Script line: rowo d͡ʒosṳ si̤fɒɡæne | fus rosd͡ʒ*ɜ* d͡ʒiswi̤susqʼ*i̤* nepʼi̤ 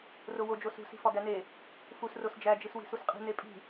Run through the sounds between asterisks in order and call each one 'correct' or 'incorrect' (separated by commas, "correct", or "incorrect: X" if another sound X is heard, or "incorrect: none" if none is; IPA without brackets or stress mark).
incorrect: æ, correct